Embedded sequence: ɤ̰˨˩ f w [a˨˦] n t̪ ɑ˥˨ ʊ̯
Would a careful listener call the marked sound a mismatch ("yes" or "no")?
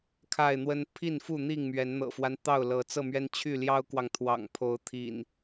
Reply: yes